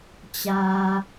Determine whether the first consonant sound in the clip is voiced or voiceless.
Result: voiceless